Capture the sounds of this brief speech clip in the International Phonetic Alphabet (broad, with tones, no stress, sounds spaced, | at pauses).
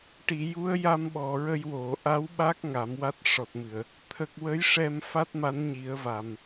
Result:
ʈ i˨˩˨ j u˧˥ ə̯ j a˧ m ɓ ɔ˨˩˨ ɹ ə˧ j w o˨˩˨ ʔ a˧˥ w ɓ a˦˥ k̚ ŋ a˨˩˦ m w a˦˥ t̚ ʂ ɔ˨˩ t̚ m ɨ˨˩˨ ə̯ | t̪ʰ ə˨˩ k̚ w ə˧˥ j ʂ ɛ˧ m f a˦˥ t̚ m a˧˥ n ɲ i˨˩˦ ə̯ v a˨˩ m